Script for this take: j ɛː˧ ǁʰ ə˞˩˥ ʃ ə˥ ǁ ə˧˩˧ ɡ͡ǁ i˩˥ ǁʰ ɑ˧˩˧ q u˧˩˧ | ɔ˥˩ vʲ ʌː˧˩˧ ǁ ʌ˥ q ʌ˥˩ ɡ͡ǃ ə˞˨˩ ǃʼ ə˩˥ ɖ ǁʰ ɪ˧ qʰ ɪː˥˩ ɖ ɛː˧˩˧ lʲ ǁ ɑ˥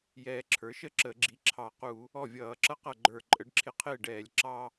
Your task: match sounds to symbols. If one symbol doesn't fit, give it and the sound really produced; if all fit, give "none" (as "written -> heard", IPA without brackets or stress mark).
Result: none